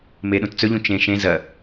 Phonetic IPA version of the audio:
m e ɗ ũ t t͡s ɵ ʎ ũ t͡ʃ ẽ ʃ ẽ z ɐ

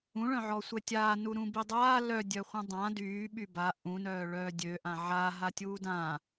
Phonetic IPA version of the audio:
ũ ɭ œ̃ ʕ ɔ sʷ ɛ tʲ aː n u ɾ ũ b i dˤ aː l œ dʲ œ χʷ œ̃ dˤ ã d yː ɓ y b a ʔ ũ n œː ɭ œː dʲ ø ʔ ã ʕ aː ɦ a tʲ uː d ãː

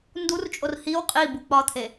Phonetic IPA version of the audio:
n d u r t͡ʃʼ o r h i w qʼ i b u k͡p ɒ t̪ʰ e

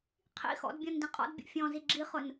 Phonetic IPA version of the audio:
qʰ ḭ x ɔ̰ d bʲ ɔ̃ n d ĩ qʼ ɔ̰ d bʲ ɔ̰ fʲ ɔ̃ z i ɡ͡ǁ i χ ʊ n

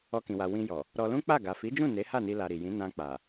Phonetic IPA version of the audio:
ɔ˧ k ĩ˨ w a˨ w ĩ˧ j ɔ˨ | ɾ ɔ˧ l ũ˦ k͡p a˦˨ ɡ a˨ f i˨˦ d͡ʒ ũ˦˨ n e˨˦ h a˦˨ n i˧ l a˧ ɾ i˨ j ĩ˨˦ n ã˧ k͡p a˨

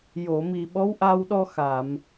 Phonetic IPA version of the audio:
j o˨˩˨ m i˨˩ ɓ ɔ˧˥ w ʔ a˧ w ɗ ɔ˧ x a˨˩˨ m

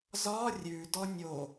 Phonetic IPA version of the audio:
z ɒ rʲ ʉ d ɔ nʲ o

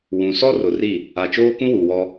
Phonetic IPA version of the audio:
w ũ˨ s ɔ˦ r ʊ˨ r i˦˨ | a˨ t͡ʃ oː˦ k ũ˦ w u˨ w ɔ˦

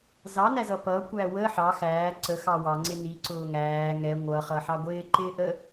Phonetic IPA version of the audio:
z ɑ n æ z ʌ p ʌ kʷ æ w ə ħ ɑ x æː ǀ ə x ɑ w ɑ ŋ͡ǀ ɪ n i ǀ ʊː ŋ æː ŋ ɛ ŋʷ ʌ χ ʌ ħ ɑ ɡʷ ɪː ǃ ɪː ʔ ə

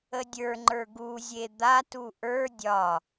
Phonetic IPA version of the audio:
ə dʲ ə˞ ŋ͡ǃ ə˞ ɡ u zʲ e d̪ a t u ʔ ə˞ dʲ ɒ

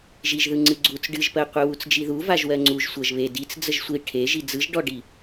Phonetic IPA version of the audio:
ʒ i ʒ ð ɯ ŋ͡ǀ ɨ ɡ͡ǀ u t͡s ɖ ɨ ʒ p ɜ qʷ e w u t͡s d͡ʒ i ð u v a ʒ w ɜ ŋ͡ǀ u ʒ sʷ ɜ ʒ β e d i t͡s d͡z ə ʒ sʷ i ʈʰ e ʒ i d͡z ɯ ʒ ɖ ɔ ɖ i

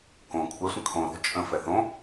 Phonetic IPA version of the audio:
k õ kʷʰ ɛ sʷ ə̃ kʰ õ ɾ o̤ t͡ʃʼ ə̃ f ɛ θ õ

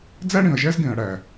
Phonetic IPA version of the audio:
d͡z æ˦ ɽ ĩ˨ ɐ̯ ʒ æ˦ z ɡ ẽ˨ ɐ̯ ɽ æ˨

